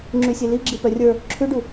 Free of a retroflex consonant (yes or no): no